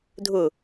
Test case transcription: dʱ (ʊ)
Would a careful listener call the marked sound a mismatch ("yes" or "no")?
no